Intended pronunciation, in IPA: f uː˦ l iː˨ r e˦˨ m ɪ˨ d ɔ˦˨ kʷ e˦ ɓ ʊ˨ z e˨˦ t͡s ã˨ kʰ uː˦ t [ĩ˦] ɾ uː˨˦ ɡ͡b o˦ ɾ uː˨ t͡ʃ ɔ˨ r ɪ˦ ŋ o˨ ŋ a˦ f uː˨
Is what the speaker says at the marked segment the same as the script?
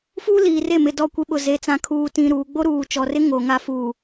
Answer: yes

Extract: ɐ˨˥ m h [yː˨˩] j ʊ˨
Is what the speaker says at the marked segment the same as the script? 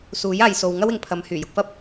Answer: yes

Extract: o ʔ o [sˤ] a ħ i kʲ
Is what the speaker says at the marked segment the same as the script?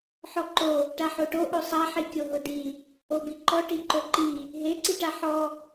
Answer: yes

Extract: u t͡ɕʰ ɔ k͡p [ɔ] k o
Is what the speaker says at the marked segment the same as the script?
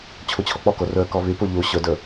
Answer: yes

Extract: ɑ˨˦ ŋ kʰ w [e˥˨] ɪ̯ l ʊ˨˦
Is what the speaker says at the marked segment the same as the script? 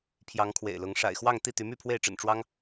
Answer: no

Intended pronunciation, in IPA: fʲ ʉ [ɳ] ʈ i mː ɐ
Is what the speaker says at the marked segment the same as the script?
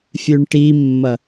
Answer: yes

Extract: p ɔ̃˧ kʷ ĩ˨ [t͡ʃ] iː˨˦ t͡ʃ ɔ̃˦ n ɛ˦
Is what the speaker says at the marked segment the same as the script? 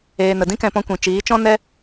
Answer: yes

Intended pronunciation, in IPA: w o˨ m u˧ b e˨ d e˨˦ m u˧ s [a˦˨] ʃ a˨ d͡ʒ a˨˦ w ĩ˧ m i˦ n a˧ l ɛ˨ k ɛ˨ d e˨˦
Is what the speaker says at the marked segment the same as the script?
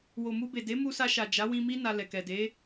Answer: no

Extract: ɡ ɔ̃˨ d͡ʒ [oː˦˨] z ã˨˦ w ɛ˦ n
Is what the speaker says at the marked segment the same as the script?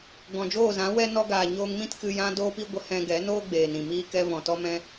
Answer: yes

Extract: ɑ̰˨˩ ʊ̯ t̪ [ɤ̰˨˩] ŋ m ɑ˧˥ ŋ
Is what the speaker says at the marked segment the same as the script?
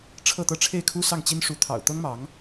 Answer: no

